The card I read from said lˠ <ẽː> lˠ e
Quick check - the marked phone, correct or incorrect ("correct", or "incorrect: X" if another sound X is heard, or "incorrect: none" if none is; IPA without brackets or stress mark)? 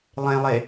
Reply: incorrect: ẽ